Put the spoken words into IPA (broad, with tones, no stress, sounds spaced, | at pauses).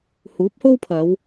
h uː˨˥ p̚ h o˥ w pʰ ɐ˨˧ w